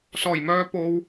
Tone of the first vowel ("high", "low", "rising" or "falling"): low